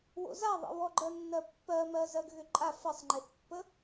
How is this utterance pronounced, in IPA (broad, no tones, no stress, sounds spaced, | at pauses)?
w o̰ z a ðˤ ə̰ w ɔ ɡ͡ǃ ɜ nː ɜ pː ɜ m ɜ z ɜ ɡ ɣ ʏ ǃʼ a f ə sˤ ŋ͡ǃ e θ pː ə